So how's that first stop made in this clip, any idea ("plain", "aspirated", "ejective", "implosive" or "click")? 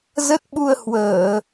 plain